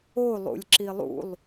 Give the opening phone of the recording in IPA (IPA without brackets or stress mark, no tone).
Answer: o